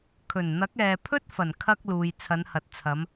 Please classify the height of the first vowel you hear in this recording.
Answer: mid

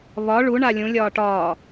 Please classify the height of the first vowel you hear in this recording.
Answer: low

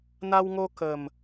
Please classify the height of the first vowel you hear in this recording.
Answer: low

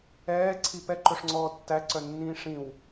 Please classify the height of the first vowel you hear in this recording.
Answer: mid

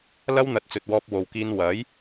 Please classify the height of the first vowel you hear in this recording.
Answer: low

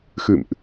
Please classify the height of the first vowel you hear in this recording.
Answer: high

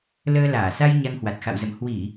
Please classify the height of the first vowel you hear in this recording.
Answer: mid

